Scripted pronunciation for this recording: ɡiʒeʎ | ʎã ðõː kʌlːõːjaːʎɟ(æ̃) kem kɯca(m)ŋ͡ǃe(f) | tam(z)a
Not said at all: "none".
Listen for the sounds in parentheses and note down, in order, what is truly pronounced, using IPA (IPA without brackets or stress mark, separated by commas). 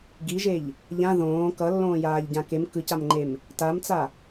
ã, m, m, t͡s